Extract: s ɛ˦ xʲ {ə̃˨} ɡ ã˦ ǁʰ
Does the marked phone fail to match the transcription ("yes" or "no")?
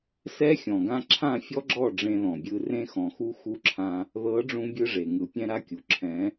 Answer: yes